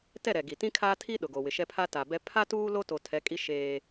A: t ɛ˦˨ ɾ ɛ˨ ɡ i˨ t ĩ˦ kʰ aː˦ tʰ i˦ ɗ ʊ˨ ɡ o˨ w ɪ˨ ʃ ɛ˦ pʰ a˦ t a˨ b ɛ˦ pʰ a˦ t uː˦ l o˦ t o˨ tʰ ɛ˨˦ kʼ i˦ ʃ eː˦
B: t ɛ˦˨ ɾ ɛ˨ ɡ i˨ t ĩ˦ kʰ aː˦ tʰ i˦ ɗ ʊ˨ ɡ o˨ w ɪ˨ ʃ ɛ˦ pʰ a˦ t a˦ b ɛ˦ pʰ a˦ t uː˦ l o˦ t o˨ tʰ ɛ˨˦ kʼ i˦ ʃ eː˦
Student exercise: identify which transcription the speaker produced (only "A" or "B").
A